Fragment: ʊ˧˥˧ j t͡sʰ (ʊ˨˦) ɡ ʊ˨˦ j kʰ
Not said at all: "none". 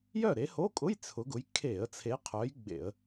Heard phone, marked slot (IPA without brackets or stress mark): ʊ˨˦